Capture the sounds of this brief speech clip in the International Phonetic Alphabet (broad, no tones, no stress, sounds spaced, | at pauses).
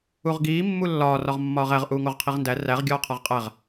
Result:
u ʁ ɡ iː mː u lː ɒː r ɒ ʁ mː ɒː ʁ æ ʁ ʔ uː ŋ o ʁ qʰ i ʁ n d æ r æ ʁ ɡʲ ɒː qʰ ɒ ʁ qʼ æ ʁ